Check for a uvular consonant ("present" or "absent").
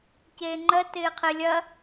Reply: present